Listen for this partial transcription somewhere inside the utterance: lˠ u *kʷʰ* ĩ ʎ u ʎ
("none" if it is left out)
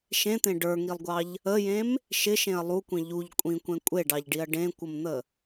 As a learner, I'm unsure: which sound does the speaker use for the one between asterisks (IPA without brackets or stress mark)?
kʷ